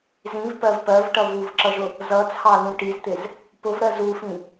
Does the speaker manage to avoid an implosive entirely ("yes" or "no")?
yes